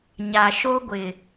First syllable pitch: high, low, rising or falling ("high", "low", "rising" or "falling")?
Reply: low